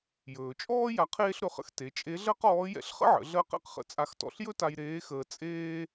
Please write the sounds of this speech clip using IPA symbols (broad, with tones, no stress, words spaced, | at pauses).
jɵː˩t͡ʃʼɔː˥ ja˧˥qʰeː˥ɬɾɵ˧χə̰˧˥x te˩˧t͡ʃʼe˧˥ɮɜ˥qɔː˧˥ jɛ̰˧ɬχə̰˥ʕə̰˩˧ ɮɜ˥qɛ̰˥qχə̰˧˥ t͡sʼa˧xtɔ̰˧ɬjɵ˥ta˧j ɾeː˧˥xəː˧ t͡sʼeː˥